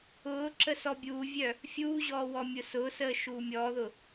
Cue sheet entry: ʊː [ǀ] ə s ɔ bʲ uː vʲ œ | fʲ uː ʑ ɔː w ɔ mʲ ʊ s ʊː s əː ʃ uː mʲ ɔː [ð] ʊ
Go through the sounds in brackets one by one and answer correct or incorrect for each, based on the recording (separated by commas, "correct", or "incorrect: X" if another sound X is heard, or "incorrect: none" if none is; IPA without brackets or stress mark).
incorrect: ǁ, correct